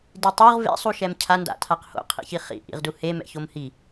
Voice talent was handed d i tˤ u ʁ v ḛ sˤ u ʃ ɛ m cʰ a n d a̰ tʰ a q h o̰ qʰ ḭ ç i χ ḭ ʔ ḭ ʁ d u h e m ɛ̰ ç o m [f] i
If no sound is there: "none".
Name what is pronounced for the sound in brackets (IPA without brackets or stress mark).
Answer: h